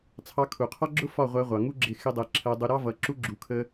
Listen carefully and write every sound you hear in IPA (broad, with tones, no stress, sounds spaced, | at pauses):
t͡sʰ ɑ˧ kʰ u˨ qʰ ɒ˦ ɡ͡ǁ ʊ˦ f ɒ˦˨ ʁʷ æ˧ ʁʷ ɑ˨ ŋ u˦ ɡ͡ǁ ɪ˧ x ɪ˦ dˤ ɛ˧ ǁʰ ɜ˧ dˤ u˧ ɾ ɑ˦ v ʌ˨˦ ǁ u˦ ɡ͡ǁ u˧ kʰ ə˦